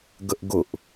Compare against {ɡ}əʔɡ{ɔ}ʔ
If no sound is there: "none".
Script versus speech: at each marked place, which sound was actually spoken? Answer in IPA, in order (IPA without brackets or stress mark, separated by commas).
ɡ, ʊ